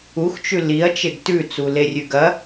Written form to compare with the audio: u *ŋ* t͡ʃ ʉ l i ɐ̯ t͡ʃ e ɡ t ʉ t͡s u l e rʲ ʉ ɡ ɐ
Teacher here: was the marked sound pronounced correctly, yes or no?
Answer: no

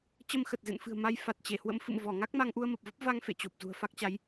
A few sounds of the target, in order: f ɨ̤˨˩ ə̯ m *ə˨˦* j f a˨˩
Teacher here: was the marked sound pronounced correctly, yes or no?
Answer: no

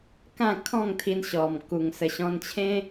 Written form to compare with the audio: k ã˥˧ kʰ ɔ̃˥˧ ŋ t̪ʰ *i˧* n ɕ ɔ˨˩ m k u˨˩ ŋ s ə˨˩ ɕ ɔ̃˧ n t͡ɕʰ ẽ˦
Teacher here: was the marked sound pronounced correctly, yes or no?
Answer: yes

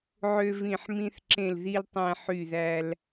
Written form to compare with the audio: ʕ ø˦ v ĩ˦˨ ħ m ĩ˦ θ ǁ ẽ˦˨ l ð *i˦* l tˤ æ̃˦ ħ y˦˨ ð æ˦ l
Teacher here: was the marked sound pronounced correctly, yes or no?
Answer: yes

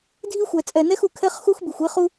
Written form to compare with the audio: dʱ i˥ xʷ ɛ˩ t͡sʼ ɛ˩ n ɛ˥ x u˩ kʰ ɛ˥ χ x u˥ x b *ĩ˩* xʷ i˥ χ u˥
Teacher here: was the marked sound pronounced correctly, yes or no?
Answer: no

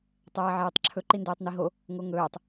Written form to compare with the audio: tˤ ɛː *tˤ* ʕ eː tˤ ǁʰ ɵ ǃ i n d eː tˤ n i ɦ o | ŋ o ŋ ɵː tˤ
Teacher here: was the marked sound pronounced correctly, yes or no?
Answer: no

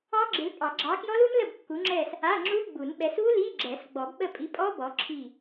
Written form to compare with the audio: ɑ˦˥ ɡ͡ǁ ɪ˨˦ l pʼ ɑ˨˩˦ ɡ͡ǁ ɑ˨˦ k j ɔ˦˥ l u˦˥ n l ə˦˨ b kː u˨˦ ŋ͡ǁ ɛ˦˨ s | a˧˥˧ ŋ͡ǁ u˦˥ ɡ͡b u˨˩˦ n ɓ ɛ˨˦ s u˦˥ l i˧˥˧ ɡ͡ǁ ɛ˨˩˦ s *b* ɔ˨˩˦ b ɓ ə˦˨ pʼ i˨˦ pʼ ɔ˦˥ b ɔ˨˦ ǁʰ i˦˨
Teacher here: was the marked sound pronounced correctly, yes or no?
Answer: no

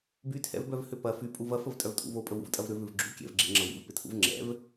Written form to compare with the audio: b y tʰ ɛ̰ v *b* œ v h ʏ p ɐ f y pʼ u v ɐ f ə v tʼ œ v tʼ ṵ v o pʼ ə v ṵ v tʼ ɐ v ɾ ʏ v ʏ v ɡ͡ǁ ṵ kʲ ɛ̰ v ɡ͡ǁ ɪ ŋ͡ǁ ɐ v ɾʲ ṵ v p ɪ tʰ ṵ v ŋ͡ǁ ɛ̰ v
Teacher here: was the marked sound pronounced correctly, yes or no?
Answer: yes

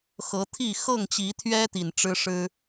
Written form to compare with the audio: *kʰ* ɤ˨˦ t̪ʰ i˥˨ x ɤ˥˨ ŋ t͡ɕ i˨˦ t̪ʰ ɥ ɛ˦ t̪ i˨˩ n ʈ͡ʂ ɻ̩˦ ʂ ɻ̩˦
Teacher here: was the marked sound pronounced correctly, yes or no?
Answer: no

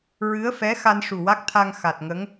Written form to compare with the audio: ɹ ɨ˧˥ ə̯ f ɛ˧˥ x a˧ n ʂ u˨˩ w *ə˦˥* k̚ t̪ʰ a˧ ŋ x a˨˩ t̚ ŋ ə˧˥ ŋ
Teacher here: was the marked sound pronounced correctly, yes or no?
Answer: no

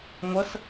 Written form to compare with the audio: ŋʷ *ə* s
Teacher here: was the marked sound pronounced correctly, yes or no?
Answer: yes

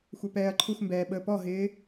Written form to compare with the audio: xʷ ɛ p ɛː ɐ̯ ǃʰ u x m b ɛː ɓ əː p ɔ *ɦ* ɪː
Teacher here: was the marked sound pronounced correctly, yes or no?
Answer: yes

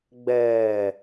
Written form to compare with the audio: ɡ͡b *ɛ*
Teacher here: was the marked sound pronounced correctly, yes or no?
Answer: no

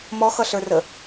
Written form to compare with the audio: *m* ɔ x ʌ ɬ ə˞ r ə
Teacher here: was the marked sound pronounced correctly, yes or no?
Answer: yes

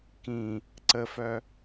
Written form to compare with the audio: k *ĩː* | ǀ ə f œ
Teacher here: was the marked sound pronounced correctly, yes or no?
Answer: no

